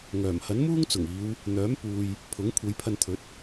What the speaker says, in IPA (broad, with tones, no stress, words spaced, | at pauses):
ŋœː˨˩m hɐ˨˥nmuː˥ŋ t͡sʊ˨˩ŋiː˨˧w | n̪œː˨˥m puː˨j | pʰʊ˨˥ŋ kʷʰe˨˧jpʰɐ˧nt̪ʰɵ˨˥t̚